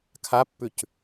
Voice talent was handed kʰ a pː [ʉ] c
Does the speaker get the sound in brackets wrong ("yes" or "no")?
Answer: no